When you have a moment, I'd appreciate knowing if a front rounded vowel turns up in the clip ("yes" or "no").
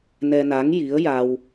no